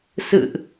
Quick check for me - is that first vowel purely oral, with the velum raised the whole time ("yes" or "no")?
yes